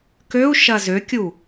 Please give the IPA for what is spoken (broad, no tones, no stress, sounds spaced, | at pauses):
k ø u̯ ʃ ɐ z ø kʲ u